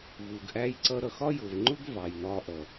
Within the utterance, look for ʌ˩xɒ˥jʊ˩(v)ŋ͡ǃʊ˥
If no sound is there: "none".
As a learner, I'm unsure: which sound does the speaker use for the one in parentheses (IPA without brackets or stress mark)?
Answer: v